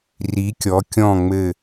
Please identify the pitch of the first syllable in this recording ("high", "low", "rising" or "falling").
rising